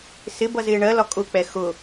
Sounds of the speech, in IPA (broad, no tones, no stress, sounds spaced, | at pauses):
s ɪ b ʌ z ɪː ɳ ɜ l ɒ kʼ ʊ k͡p ɛ x ʊ